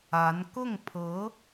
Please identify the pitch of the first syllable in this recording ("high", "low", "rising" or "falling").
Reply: rising